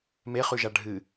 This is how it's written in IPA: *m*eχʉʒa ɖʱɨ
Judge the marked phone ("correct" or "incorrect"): correct